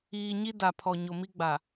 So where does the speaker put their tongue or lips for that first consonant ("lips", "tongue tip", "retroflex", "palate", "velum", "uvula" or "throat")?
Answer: palate